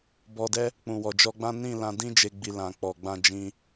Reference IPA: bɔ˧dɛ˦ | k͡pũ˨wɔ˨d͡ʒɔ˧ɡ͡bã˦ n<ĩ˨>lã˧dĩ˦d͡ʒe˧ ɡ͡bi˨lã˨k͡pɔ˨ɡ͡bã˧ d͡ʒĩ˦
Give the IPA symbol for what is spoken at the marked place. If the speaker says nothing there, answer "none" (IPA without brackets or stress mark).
ĩ˦˨